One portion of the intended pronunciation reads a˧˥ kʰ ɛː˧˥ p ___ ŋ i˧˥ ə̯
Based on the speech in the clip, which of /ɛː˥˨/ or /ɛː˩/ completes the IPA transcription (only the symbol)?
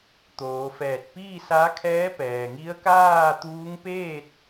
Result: ɛː˩